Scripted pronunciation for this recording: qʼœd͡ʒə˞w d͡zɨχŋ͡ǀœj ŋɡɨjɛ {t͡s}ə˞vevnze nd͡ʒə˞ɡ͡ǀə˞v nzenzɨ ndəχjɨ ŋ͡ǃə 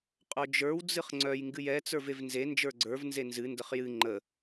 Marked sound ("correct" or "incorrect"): correct